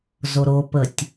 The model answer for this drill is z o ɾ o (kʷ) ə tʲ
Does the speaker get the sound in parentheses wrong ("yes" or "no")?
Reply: yes